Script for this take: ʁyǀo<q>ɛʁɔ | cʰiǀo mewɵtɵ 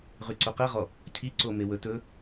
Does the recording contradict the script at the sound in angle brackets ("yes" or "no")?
no